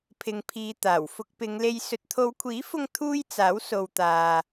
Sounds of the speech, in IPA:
pʰ ɪ˨ ŋ pʰ iː˨ t̪ aː˨˩ w f ʊ˧ k̚ p ɪ˨˧ ŋ l e˧ j s ɵ˨ t̚ t̪ʰ o˨˧ w kʷʰ iː˨˥ f ʊ˧ ŋ t̪ʰ uː˥ j t͡s aː˨˥ w s o˨ w t̪ aː˨

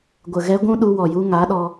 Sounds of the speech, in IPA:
ɡʷ ə˨ ɣ ɛ˧ ɡʷ ũ˦ ɗ u˧ w ɔ˨ j u˧ ŋ a˨˦ ɗ ɔ˧

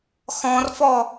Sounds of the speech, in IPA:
x ɔ̃ r f ɔ

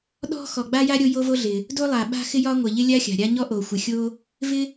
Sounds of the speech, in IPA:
ɗ ɔ̤˥ x ɔ˩ ɡ͡b a˥ j a˥ ɾʲ o˥ j o˥ v o˥ ɮ ɪ˩ | d o˥ lˠ a˩ ɓ a̤˥ x ɪ˥ j ɒ˥ ŋʷ ɪ˩ ʎ ɪ˥ lʲ a˥ xʲ a̤˩ ɾʲ a˥ ɲ ɔ˥ ʔ o˩ xʷ ɪ˩ xʲ o˥ | v ɪ˥

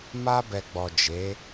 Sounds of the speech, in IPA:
m a˧ b ɛ˨ ɡ͡b ɔ˨ d͡ʒ e˨˦

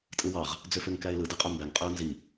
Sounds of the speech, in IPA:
tʼ ɯ w ɑ ʁ | d͡z ø f ø ŋ k æ ɪ̯ l ɯ d ɯ qʼ ø m b æ ŋ qʼ ø ʊ̯ n z i

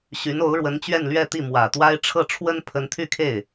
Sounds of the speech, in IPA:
ɕ y˧˥ n o˧˥ ʊ̯ ɻ w ə˧˥ n t͡ɕ ɥ ɛ˥˧ n l ɥ ɛ˥˧ t̪ i˥˩ m w ä˨˩ t̪ w a˥ ɪ̯ ʈ͡ʂʰ ɤ˥˩ ʈ͡ʂʰ w ə˥ n pʰ ə˧˥ n t̪ʰ y˥˧ kʰ e˥˩ ɪ̯

